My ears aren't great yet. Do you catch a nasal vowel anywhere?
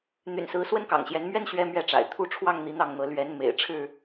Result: no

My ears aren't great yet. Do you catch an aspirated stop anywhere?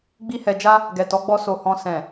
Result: no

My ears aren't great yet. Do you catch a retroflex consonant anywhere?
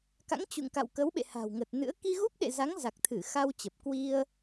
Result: no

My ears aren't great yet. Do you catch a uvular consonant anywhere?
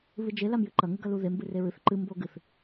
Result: no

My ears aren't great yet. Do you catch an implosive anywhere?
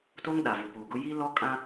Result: yes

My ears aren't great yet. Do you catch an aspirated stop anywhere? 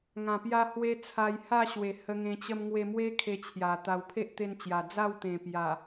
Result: yes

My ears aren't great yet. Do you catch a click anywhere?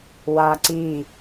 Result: yes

